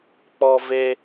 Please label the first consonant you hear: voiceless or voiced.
voiceless